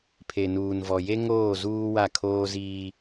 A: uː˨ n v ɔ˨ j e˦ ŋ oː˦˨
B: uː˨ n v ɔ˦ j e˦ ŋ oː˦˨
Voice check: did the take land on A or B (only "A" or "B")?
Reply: A